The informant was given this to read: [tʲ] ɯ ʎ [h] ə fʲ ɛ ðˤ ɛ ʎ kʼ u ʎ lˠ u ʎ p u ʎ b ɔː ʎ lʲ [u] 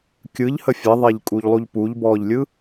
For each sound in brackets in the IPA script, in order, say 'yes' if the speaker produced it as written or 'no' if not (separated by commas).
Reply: no, yes, no